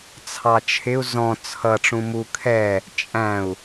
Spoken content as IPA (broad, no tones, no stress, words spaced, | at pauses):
t͡sʰɑt͡ʃʰɪu̯ zɔ̃ t͡sʰʌ ʈ͡ʂũmu kʰɛ | t͡ʃʼæ̃u̯